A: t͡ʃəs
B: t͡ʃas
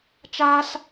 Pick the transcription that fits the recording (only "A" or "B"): B